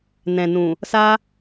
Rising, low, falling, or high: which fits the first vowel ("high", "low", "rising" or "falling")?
low